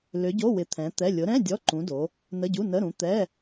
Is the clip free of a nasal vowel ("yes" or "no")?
no